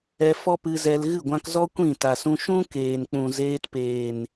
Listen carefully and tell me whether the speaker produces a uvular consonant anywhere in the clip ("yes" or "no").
no